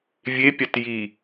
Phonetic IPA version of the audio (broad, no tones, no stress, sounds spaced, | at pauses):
vʲ e pʲ a t j i